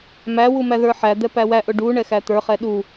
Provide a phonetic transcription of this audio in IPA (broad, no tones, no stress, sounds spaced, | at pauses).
m æ w u m æ ð ə˞ ħ æ d̪ ɛ p æ w æ ʔ ʊ ɖ u ɳ ɛ x æ t̪ ə˞ χ ɛ ɗ u